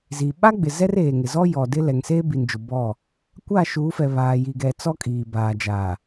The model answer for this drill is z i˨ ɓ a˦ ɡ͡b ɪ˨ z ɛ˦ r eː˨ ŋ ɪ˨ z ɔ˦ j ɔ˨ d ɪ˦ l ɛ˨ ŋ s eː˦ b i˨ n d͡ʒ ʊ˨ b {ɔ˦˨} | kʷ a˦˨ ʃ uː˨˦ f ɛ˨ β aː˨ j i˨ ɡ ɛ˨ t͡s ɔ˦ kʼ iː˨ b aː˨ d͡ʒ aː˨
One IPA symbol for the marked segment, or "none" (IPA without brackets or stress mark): ɔ˦˨